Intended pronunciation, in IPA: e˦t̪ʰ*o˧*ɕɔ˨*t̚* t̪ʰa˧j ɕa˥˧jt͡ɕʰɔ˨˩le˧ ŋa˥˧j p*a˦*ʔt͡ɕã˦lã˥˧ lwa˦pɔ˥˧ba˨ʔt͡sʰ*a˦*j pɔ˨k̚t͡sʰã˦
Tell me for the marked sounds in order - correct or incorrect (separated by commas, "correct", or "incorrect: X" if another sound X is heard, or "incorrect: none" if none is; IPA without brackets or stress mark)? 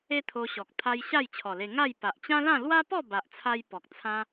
correct, incorrect: k̚, incorrect: a˨, incorrect: a˧